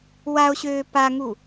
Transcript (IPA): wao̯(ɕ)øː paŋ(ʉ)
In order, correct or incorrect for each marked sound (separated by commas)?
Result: correct, incorrect